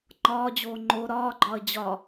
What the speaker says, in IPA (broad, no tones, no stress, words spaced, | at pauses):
ŋ͡ǃɒːd͡ʑoː ŋ͡ǃo ɾɒːɡ͡ǃɒə̯ d͡ʑɒ